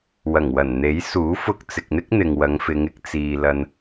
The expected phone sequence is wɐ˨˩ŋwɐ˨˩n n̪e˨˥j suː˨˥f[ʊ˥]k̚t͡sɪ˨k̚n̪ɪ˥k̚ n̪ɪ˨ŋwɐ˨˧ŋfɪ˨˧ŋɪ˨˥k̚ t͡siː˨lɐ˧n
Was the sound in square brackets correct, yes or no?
no